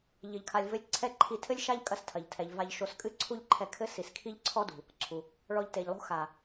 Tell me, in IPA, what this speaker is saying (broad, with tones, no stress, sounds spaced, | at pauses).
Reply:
ʎ ɘ˧ ʎ kʰ a˧ lʲ v ɘ˦ lʲ ǀʰ ɛ˦ ǃʰ i˧ tʰ ɘ˦ lʲ ʃ a˦ ʎ kʼ ɐ˧ s tʰ ɐ˨ ʎ tʰ ɛ˨ ʎ v a˧ ʎ ʃ o˧ s kʼ ɨ˦ ǀʰ u˦ ʎ ǃʰ ɛ˧ kʰ ɘ˦ s i˨ s kʰ i˦ ʎ ǀʰ ɔ˦ d ṳ˨ | ǀʰ u˨ | ɭ ɔ˧ ʎ t e˨ ʎ lˠ o̤˦ x a˨